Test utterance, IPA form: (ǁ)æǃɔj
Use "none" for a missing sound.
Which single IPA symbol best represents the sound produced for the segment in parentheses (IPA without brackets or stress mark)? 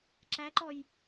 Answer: ǁ